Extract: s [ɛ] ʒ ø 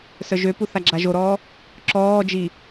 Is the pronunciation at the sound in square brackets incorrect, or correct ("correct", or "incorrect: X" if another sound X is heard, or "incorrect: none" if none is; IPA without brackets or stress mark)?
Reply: incorrect: œ